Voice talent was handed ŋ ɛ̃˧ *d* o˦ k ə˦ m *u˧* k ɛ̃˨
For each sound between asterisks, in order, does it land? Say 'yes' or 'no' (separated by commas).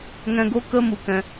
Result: no, no